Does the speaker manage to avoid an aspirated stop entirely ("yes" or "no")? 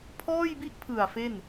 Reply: no